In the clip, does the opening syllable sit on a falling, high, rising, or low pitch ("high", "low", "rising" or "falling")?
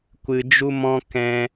low